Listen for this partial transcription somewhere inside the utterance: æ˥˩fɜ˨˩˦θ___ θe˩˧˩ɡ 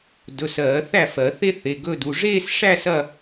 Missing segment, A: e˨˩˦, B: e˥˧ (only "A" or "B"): B